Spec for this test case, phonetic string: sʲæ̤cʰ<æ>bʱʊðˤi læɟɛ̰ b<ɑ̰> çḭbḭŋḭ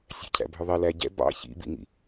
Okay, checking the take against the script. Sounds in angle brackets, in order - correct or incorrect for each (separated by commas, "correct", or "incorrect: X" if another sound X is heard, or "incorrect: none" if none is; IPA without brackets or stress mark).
incorrect: æ̰, correct